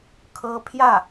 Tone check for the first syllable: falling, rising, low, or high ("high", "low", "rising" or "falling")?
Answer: high